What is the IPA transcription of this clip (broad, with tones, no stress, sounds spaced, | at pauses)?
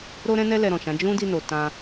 ɾ o˦ ɾ ɛ̃˦ n ɛ˦ l ɛ˧ ɾ ɔ̃˨ ʃ ã˨˦ d͡ʒ ũ˦ d i˧ n o˨ t ã˧